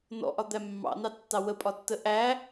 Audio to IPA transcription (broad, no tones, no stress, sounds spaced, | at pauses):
n ɔ̰ ʔ ɒ d̪ æ mː ɑ̰ n ɑ tː ɑ w ə pʼ ɒ tː ə ʔ æ